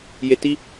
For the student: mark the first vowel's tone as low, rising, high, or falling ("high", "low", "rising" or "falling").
low